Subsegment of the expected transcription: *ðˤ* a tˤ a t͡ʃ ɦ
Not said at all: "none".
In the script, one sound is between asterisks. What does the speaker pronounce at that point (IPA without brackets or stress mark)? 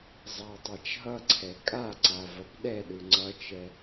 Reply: zˤ